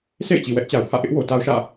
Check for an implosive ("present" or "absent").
absent